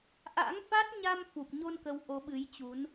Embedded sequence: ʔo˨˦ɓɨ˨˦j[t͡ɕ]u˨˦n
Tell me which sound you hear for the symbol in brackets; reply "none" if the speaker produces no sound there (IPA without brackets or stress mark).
t͡ɕ